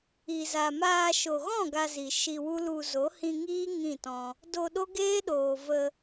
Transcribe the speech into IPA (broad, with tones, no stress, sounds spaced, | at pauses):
i˨ z a˨ m aː˧ ʃ o˨ ɣ ɔ̃˦˨ ɡ a˧ z i˨ ʃ i˧ w u˦ l u˧ z o˨˦ h ĩ˧ ŋ iː˦ ŋ ĩ˦˨ t ɔ̃˧ | d o˧ ɗ o˦ ɡ eː˦ ɗ oː˨ v ə˧